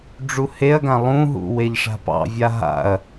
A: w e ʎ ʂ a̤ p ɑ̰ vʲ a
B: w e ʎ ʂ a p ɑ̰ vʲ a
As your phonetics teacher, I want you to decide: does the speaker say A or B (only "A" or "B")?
A